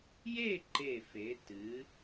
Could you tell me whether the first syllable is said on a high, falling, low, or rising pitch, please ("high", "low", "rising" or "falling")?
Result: falling